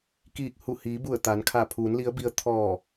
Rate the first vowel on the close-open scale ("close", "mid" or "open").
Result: close